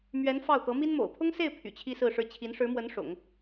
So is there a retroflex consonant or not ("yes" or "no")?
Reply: yes